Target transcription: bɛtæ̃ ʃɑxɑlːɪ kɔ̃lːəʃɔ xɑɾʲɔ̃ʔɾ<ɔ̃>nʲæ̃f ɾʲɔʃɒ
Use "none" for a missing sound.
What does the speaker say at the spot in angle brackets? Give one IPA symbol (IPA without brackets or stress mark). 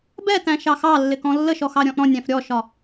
ɔ̃